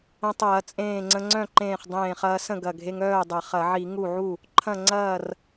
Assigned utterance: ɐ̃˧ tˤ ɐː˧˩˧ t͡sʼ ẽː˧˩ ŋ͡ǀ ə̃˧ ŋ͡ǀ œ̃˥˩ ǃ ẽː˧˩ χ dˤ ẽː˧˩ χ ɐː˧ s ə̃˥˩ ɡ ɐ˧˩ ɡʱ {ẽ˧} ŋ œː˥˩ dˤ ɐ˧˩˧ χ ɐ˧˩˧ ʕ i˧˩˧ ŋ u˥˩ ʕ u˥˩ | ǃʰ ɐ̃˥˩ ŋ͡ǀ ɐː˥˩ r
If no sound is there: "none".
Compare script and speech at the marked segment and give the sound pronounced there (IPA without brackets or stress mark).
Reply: e˧